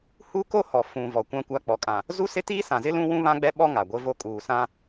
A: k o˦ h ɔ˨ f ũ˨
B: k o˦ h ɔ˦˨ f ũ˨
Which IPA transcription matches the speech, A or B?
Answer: A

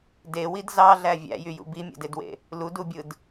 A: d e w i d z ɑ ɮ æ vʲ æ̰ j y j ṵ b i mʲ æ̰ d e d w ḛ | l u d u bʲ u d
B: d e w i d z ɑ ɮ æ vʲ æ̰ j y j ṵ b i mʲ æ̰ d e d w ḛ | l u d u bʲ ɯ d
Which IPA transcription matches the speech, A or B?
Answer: B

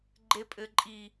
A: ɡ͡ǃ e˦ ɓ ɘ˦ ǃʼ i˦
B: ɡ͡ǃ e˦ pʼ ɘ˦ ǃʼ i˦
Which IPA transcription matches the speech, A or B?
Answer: B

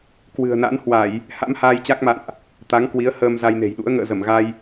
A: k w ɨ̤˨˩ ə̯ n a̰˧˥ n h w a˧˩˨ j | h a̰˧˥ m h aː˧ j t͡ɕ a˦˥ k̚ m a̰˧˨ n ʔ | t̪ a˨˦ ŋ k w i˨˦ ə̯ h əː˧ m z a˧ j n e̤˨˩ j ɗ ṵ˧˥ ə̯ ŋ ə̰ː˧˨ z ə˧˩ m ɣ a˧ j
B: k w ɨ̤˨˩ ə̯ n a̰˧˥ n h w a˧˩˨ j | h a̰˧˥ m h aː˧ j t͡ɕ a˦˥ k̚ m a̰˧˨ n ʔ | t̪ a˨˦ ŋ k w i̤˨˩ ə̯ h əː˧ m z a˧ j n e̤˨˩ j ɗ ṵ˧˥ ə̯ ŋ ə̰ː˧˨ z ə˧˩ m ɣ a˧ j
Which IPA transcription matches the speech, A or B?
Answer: A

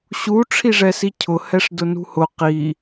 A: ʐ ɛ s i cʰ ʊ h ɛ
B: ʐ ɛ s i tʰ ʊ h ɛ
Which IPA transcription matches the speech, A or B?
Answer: A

